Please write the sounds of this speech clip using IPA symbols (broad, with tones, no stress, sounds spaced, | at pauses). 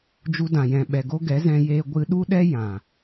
d͡ʒ u˧ d ã˨ j ɛ̃˨ ɓ ɛ˨ ɡ o˦ ɡ ɛ˨˦ z ɛ̃˧ j eː˧ ɡʷ ɨ˧ ɗ u˦ ɗ ɛ˦ j ã˨